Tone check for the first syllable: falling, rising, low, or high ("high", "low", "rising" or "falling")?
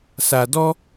low